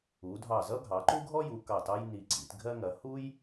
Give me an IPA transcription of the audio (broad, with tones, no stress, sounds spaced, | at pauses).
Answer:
u˩˧ dʱ ɑ˧˩ z ʌ˥ ɡʱ ɑ˩˧ ǃ u˥ ɡʱ ɔ˥ j u˩˧ k ɑ˧˩ t ɑ˥ j n i˧˩ ǀ ḭ˩˧ t ɡʱ ɜ˥ ŋ ɐ˩˧ h u˥ j